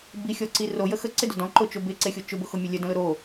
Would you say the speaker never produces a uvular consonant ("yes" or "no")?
yes